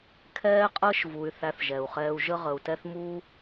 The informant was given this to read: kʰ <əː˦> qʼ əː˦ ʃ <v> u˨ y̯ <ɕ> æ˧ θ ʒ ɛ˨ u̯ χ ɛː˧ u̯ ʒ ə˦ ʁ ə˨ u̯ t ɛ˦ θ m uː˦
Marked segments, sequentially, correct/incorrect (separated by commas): incorrect, correct, incorrect